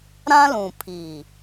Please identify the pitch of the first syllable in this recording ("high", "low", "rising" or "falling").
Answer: high